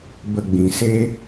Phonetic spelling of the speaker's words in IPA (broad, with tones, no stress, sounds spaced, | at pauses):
b ə˨ ɡ͡b ĩ˨ s e˦